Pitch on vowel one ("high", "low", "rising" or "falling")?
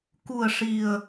low